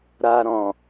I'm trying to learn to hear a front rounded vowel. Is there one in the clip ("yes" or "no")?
no